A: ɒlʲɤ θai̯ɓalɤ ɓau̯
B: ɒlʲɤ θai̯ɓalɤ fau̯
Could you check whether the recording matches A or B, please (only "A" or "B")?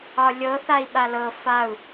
B